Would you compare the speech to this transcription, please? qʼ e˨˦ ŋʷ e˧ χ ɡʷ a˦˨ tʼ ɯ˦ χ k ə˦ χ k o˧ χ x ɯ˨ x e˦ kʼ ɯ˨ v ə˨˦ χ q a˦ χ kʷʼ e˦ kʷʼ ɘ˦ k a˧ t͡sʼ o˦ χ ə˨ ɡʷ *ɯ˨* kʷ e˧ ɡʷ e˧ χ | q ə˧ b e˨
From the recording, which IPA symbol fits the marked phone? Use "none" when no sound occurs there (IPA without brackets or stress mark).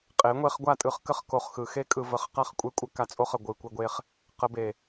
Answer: ɯ˨